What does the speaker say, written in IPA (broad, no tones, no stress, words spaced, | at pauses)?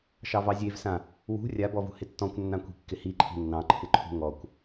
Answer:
ʃɑvɑzʲevsã | wṳ rʲabɔvṳ hɪtːɔ̃kʷ nːãkʷi̤kːɪhi ǃʰi̤nːɑ̃ǃʰɪǃʰṳ ŋɔkʷ